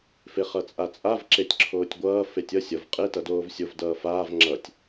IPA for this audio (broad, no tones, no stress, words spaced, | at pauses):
feχʌt͡sʼat͡sʼav ǁetʲǁʰoːtʲɡʷʌː fetʲʌ sʲʌv qʼe tʌdoːvsʲov dʌːfaːv ŋ͡ǁʌtʲ